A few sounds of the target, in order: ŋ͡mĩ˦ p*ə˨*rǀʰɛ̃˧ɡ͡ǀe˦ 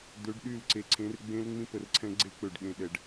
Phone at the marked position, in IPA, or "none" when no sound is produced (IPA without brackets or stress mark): ə˨